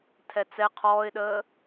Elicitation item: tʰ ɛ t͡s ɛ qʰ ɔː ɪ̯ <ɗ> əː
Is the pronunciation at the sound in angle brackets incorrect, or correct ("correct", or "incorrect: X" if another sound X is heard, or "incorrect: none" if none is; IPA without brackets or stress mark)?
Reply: correct